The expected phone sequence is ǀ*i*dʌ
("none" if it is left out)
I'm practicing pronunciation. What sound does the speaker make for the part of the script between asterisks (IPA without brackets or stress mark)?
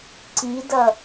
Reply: i